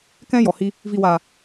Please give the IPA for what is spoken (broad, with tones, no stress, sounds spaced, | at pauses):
k ɛ̃˦ j ɔ˨ h i˧ | v i˨ w aː˨